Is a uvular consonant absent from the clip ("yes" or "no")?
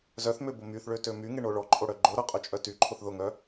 no